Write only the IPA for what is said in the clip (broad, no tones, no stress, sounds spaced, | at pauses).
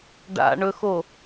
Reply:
ɖ a̰ ɳ ɵ x o